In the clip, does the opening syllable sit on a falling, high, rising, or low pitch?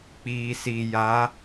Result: low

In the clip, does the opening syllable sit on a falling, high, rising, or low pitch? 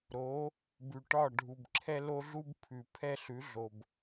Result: rising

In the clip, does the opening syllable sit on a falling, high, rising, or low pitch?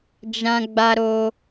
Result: high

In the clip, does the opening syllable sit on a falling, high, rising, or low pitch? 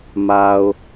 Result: low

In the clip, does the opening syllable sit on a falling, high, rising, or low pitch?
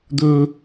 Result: low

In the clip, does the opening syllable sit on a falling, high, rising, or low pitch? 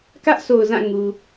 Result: high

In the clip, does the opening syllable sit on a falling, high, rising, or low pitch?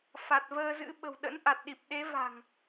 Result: low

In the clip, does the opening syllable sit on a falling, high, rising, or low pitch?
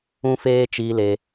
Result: high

